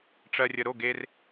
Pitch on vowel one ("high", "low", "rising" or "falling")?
low